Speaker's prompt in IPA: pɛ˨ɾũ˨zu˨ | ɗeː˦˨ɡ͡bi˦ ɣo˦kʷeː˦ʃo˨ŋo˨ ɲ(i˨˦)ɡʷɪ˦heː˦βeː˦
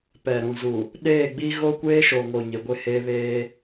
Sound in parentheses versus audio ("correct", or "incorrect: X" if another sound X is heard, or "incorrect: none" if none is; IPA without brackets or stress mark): incorrect: ɪ˨˦